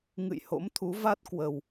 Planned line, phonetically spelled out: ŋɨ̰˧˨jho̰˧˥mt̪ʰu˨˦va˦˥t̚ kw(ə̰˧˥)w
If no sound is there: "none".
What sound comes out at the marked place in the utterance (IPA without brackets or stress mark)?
ə˧